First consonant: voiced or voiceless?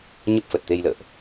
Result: voiced